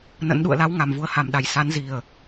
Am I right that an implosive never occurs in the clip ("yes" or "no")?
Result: no